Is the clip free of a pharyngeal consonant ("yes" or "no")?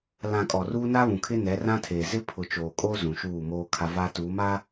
yes